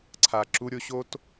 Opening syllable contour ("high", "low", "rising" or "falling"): low